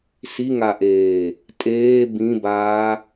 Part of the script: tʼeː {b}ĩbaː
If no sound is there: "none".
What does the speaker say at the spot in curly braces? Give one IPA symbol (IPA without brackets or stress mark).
b